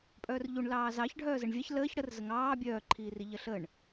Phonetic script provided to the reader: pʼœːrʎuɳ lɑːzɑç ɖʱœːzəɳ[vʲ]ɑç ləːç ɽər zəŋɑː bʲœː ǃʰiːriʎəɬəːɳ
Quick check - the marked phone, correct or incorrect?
correct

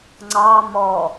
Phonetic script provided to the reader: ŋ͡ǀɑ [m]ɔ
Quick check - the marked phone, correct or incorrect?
correct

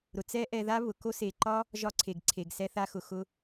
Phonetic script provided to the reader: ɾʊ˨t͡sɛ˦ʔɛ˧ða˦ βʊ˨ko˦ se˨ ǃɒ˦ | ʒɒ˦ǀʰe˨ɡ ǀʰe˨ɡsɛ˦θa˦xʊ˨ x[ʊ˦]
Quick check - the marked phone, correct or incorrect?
incorrect: ʊ˧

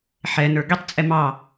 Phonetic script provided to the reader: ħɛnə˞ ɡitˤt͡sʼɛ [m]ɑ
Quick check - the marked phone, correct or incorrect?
correct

